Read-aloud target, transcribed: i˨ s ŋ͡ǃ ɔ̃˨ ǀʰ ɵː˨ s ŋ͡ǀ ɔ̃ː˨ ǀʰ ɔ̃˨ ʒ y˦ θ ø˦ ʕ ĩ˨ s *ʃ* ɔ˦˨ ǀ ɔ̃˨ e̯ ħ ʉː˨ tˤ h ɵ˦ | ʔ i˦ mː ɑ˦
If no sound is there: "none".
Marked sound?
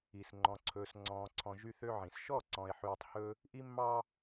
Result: ʃ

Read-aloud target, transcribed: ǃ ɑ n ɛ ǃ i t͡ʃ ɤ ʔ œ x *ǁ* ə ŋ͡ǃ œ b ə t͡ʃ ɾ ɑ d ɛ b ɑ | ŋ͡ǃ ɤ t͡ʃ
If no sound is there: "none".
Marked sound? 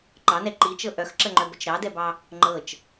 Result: ǁ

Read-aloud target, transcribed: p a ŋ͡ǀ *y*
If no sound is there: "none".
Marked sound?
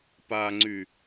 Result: y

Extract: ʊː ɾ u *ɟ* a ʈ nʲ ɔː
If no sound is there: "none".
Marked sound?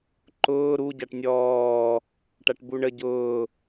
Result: ɟ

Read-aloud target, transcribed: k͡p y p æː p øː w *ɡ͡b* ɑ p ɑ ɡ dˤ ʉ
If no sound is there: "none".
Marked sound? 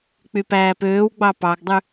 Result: ɡ͡b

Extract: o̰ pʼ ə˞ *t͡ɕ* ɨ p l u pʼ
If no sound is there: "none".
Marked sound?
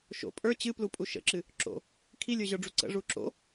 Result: t͡ɕ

